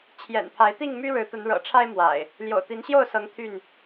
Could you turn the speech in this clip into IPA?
t͡ɕʰjɛ̰˨˩npʰa˨˦ɪ̯t̪i˥˨ŋmy˦ ɻɻ̩˨˦t̪ə˨˦nɻɤ̰˨˩ʈ͡ʂʰa˦ɪ̯ mwa̰˨˩ɪ̯ | ljo̰˨˩ʊ̯t̪i˨˦nɕjo˥˨ʊ̯sɤ˨˦ŋ t̪ʰy˥˨n

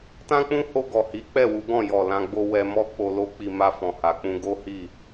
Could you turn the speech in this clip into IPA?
tã˦k͡pũ˦ho˧ ɡɔ˨hi˨˦k͡pɛ˦˨wu˨˦ ɡɔ̃˦˨jɔ˨ lã˧ɡ͡bo˦ wɛ˧mɔ˦ k͡po˧lo˦k͡pi˧ ma˧fɔ̃˨ha˨k͡pũ˧ ɡo˦hi˦˨

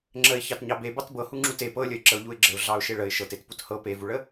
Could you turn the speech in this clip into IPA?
ŋ͡ǁəɪ̯ çɑtɲɑbe bɑtbɤhu ŋ͡ǁute pɤlʲəɪ̯ ǁəʊ̯ʎuɪ̯ɡ͡ǁəʊ̯ ɮɑʊ̯ʃeɭəɪ̯ ʃɤtetput hɤ pevuɭə

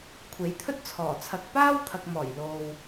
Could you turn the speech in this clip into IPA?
kʷʰe˨˥jt̪ʰɵ˥t̚t͡sʰɔː˨˩ t͡sʰɐ˧k̚ paː˥wt̪ʰɐ˨k̚mɔː˨˩j lo˨w

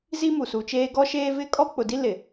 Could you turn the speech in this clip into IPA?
zi˦mu˨su˨t͡ʃeː˦ ɡɔ˦ʃeː˦ vɪ˦kʼɔ˦ k͡pʊ˨di˦ lɪ˨

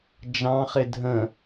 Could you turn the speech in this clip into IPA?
d͡ʒɑ̃χɪ dʱə̃

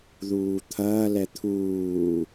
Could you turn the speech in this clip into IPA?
ðuːt̪ʰɐːlɛ t̪ʰuː

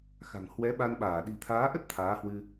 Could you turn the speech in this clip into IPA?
xa̤˨˩ŋ hwɛ˨˦ɓa˧n ɓaː˧˩ɗi̤˨˩t̪ʰaː˨˦ʔə˦˥t̚ t̪ʰaː˨˦hwɨ˧

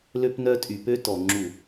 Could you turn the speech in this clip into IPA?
lø˦pnœ˦ tʼy˨pø˦tɔ˨ ŋ͡ǁu˦˨

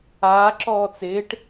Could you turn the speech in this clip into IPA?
aː ǁɔːt͡sɪːʈ

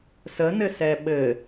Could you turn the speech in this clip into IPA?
sənɘsɛ ɓɘ

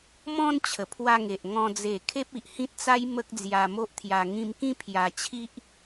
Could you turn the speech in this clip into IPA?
mɔ̃˧n t͡ɕʰə˨˩pʰwa˧ŋe˨ʔŋɔ̃˧ d͡ze˨˩ kʰe˦p̚i˨ʔhĩ˦t̚t͡sa˦j mə˦k̚d͡zja˧mo˦ʔt̪ʰja˧ ŋĩ˧mkĩ˦ pʰja˧t͡ɕʰi˦ʔ

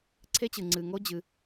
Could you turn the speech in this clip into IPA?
ǀʰe˦t͡ɕɨ˨ ŋ͡ǀɨ˨ŋo˦ d͡ʑɨ˦

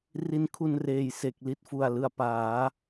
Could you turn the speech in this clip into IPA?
ri˧nkʰu˧nreː˨˩j se˨˩k̚ li˥˩t̚fu˨˩a̯lɯ˨˩a̯ paː˩˦

